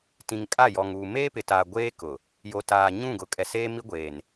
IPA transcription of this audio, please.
t ĩ˨ ŋ kʼ a˦˨ j ɔ˨ ŋ uː˨ m eː˦ p ɪ˨ t aː˨ ɡʷ eː˦ k ʊ˨ | j o˨ t aː˨ ɲ ũ˦˨ ɡ ʊ˨ kʼ ɛ˨ s eː˦ m i˦ ɡʷ eː˨ n

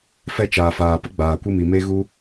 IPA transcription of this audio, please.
f ɛ˧ t͡ʃ aː˨ f aː˨ p ə˦ ɡ͡b aː˨ kʷ ɨ˧ m i˨ m e˧ ɣ u˧

